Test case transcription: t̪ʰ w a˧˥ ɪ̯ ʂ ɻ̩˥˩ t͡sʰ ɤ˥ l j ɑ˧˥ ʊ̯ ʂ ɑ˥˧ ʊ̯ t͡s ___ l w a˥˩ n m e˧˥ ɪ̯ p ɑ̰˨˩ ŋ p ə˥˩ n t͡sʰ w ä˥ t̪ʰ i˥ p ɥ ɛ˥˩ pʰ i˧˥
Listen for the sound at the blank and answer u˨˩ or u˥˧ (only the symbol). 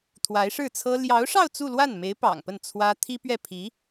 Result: u˥˧